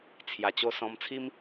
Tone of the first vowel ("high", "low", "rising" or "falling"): low